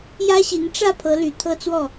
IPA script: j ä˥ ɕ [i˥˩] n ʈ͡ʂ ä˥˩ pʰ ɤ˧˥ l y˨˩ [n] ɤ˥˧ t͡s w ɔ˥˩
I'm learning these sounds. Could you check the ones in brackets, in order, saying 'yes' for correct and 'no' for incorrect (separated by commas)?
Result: no, no